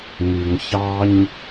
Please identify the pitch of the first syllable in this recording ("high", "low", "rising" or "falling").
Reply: low